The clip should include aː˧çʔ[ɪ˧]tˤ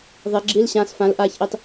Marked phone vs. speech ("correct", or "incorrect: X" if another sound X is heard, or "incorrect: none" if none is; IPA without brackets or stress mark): incorrect: i˧